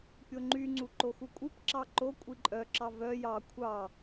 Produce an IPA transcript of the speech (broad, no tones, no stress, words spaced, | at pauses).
pʲoŋ͡ǃyŋ͡ǀu ǃoxukʷʼipǁɑ ǃo kʷʼiǃʼœǁɑ vœ jɑ kʷʰɑ